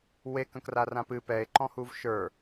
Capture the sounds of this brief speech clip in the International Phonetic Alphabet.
w e k ə̃ k r a r ã p ɨ p ɛ e̯ ǃ ɔ̃ h u v ʃ ə˞

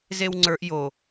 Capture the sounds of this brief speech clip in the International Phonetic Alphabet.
z e w ŋ͡ǀ ə˞ ʔ j o

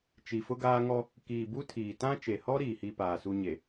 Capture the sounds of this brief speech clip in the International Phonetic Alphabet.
t͡ʃ i˨ f ʊ˦ ɡ aː˦ ŋ ɔ˦ | k iː˨ b u˦ tʰ iː˨ t ã˦ t͡ʃ e˨ h ɔ˦ ɾ iː˨ h i˦ p aː˨ s u˦ ɲ e˨

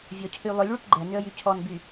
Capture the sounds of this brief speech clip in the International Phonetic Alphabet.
vʲ ɔ cʰ y lˠ ʏ lʲ ɭ y p ɡ͡ǃ ɛ n ʏ ə̯ j y cʰ ɔ n b y

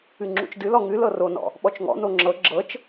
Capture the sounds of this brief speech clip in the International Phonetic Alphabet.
ɨ ŋ͡ǁ ṵ t͡ʃ d ɨ l ɔ ŋ ɨ l ɤ r o n ɔ̰ | ɓ ɔ t͡ʃ ŋ ɔ̰ n o ŋ͡ǁ ɤ ɡ͡ǁ ɤ t͡ʃ

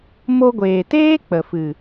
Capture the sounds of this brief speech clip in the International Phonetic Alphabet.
m o˧ ɡʷ eː˨ t eː˦ k͡p ə˨ f ɨ˨

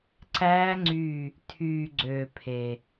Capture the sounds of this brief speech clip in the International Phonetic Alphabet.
ǀ æː˦˥ ŋ͡ǀ y˦˨ | tʰ yː˨ ɡ͡ǀ øː˨ pʰ e˨

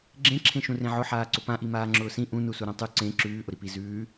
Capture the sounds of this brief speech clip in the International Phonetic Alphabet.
ɡ͡ǁ ẽ ǁʰ ẽ ʃ ũ r ẽ ʕ ʊ ħ aː ǀ ʊ p ã ʔ i m aː ŋ͡ǁ ʊː s ĩ ʔ ũ n u s u ɾ ã tˤ ʉ ǀ ẽ ǁ ʉː ʔ ʊ ɾ i p i z ʉː

